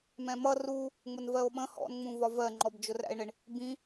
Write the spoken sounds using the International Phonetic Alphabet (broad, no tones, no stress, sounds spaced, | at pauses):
m ɛ̃ m ʌ r u | ŋ͡m ʊ n v ɜ o̯ ɓ ə̃ h ɔ̰ n ŋ͡m ũ v ɒ v ɜ ŋ͡ǃ ɔ b d͡ʒ ʊ r æ̰ e̯ ɳ ɪ ɳ | b ĩ